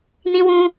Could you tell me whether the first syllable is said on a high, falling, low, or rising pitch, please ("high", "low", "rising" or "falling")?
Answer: high